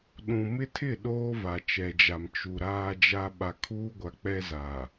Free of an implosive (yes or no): no